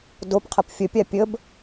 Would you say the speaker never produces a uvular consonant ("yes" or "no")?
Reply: no